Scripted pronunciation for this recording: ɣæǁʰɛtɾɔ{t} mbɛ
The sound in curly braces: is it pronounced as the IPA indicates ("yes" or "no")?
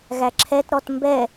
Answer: yes